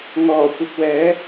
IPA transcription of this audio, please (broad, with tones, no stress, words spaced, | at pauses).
ŋɔː˨˩ kʷɐ˨k̚wɛː˨˥